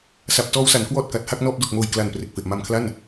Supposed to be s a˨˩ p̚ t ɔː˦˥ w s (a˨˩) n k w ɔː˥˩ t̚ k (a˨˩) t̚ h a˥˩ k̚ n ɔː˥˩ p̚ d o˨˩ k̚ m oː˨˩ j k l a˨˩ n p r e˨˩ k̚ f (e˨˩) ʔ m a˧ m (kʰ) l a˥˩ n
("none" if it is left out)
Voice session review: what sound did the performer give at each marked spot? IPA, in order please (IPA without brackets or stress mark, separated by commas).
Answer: a˩˦, a˨˩, e˨˩, kʰ